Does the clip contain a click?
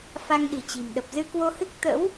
no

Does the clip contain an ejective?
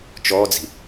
no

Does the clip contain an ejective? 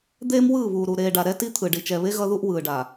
no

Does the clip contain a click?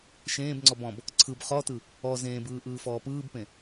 yes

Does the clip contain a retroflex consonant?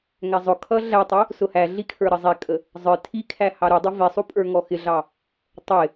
no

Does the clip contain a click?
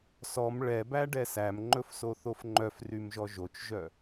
yes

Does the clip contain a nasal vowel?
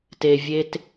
no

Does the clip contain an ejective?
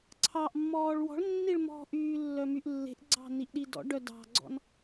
no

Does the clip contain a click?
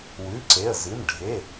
yes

